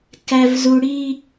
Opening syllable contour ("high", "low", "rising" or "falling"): high